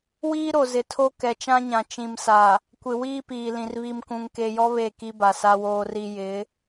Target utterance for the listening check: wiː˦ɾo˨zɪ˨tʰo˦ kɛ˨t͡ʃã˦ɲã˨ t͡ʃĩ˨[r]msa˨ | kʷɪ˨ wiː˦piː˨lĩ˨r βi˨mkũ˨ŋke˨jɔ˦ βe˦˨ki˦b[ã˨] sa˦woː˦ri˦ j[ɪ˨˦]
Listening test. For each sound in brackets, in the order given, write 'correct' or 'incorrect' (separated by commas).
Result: incorrect, incorrect, correct